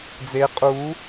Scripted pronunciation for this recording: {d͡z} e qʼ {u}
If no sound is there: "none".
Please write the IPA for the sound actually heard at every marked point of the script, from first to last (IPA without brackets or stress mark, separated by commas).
d͡z, u